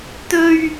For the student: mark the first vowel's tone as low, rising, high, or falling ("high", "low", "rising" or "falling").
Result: high